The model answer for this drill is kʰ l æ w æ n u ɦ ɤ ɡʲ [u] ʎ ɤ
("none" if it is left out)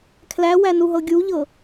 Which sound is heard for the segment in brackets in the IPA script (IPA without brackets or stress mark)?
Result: u